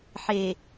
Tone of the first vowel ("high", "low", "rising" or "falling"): low